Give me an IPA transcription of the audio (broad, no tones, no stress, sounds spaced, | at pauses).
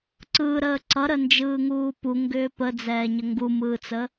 ǀ ɯ ɾ əː ǀ ʌ ɾ ə n d͡ʒ ɯː ŋ uː p u ŋ ɡ ʏː p ə d͡z ɛː ɲ ə ŋ ɡ u m ɯː t͡s ə